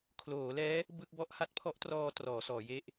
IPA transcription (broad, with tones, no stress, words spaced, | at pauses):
kʰloː˩˦lɛː˦˥ | bɯ˥˩k̚ bɔ˥˩ʔ ha˦˥t̚pʰɔ˦˥ʔtrɔː˧ trɔː˩˦sɔː˩˦je˥˩ʔ